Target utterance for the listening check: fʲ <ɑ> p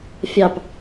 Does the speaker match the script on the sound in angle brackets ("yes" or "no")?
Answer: yes